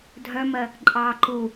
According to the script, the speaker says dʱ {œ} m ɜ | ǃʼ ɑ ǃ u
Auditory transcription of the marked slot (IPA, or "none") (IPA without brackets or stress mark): œ